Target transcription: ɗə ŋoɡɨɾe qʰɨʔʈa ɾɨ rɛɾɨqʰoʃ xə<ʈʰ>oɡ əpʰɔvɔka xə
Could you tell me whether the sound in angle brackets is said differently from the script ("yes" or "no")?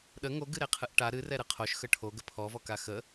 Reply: no